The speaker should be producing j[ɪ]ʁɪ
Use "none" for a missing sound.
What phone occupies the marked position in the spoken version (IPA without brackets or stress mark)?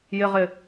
ɪ